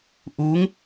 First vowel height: high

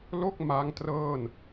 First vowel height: mid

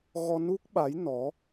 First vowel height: mid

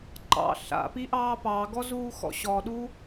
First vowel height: low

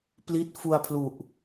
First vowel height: high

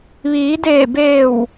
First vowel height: high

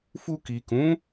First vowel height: high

